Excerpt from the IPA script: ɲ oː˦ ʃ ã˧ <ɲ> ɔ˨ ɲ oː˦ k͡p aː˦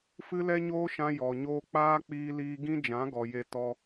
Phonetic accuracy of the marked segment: incorrect: j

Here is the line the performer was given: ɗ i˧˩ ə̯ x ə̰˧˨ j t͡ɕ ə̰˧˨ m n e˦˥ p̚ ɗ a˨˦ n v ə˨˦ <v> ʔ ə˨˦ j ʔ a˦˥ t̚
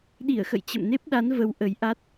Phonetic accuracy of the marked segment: incorrect: w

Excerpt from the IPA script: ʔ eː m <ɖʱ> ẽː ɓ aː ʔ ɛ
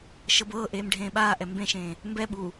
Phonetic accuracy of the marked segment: correct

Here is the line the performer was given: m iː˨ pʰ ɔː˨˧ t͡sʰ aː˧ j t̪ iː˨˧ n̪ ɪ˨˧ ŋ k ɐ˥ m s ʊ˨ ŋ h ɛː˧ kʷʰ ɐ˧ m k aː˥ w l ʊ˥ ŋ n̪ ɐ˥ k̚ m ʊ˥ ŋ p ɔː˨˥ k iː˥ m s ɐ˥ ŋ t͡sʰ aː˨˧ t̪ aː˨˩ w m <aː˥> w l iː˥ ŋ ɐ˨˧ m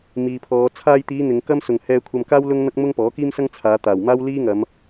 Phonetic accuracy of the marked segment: correct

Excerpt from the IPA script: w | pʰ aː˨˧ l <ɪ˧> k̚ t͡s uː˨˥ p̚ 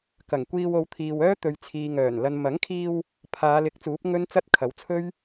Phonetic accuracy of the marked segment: incorrect: ɪ˨˥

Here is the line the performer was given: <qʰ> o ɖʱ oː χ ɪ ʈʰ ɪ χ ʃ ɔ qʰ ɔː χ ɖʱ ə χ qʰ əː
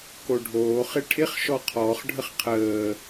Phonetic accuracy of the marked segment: incorrect: k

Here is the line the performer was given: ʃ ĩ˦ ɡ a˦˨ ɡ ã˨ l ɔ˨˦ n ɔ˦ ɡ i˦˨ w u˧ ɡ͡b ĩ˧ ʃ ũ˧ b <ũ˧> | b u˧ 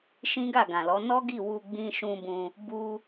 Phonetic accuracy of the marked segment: correct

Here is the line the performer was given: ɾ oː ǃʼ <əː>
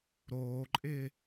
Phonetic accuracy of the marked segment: incorrect: ɪː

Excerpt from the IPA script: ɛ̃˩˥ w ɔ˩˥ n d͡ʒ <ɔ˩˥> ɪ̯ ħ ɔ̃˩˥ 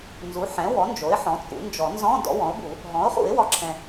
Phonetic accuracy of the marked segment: incorrect: o˩˥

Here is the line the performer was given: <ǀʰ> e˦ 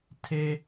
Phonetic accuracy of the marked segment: incorrect: tʰ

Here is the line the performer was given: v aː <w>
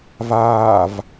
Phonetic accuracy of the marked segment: incorrect: v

